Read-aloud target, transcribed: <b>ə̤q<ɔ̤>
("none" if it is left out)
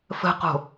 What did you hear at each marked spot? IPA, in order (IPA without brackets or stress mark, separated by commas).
f, o̤